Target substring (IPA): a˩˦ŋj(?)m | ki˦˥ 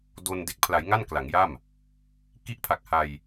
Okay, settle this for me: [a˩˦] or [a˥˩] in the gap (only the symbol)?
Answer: a˥˩